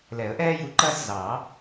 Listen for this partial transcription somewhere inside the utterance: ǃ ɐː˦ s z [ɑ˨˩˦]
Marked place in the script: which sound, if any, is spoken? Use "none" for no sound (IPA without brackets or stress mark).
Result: ɑ˨˩˦